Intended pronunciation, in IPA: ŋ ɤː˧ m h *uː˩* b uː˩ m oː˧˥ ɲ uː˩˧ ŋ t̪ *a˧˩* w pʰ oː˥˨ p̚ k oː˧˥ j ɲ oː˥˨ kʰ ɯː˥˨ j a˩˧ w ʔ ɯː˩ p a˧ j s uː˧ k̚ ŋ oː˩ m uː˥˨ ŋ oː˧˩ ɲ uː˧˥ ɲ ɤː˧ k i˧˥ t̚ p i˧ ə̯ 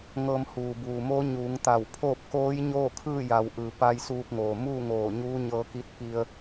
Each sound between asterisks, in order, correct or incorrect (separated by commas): correct, correct